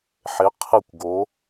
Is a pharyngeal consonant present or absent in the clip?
present